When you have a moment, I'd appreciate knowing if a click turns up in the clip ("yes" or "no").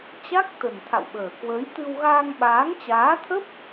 no